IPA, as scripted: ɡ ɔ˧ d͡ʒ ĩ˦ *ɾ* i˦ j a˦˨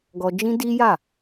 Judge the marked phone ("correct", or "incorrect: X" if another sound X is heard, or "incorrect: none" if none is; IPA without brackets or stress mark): incorrect: d